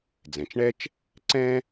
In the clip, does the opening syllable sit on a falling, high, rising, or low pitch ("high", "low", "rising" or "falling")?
low